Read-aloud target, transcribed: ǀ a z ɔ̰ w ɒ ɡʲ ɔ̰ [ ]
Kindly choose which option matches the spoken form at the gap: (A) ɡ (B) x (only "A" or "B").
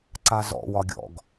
A